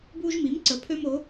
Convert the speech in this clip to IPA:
b uː˦ ʒ m i˨˥ m ǀ ə˨˥ pʰ ø˦ m o˨˥

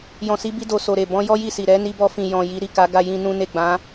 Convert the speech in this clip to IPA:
j ɔ̃˨ s i˨˦ b i˧ d o˨ s o˨ ɾ e˨ b ɔ̃˨˦ j ɔ˦ j i˦˨ s i˨ ɾ ɛ˨˦ n i˧ b ɔ˧ f ĩ˨ j ɔ̃˨ j i˨˦ ɾ i˦˨ k a˨˦ ɡ a˧ j ĩ˧ n ũ˦ n e˦˨ ɡ͡b ã˨˦

